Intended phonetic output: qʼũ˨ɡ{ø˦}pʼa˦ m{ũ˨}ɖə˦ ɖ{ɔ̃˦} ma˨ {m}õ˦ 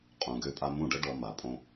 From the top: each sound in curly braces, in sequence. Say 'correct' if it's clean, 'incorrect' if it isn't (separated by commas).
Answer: correct, incorrect, incorrect, incorrect